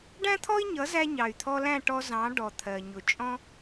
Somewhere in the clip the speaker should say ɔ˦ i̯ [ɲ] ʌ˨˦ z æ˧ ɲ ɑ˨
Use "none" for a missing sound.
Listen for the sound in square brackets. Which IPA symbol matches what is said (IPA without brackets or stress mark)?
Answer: ɲ